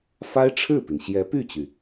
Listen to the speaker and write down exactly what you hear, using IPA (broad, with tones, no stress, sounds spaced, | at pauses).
f a˥ ɪ̯ ʈ͡ʂʰ ɻ̩˥˩ p i˩ n ɕ j ɛ˧˥ p y˥˩ t͡ɕ y˩